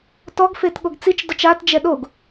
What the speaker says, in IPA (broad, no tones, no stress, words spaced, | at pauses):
tɔɡfet ɠoɡt͡sit͡ʃdɔt͡ʃ atd͡ʒɛ ɗoɡ